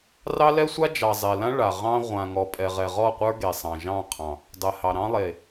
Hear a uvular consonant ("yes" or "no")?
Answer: yes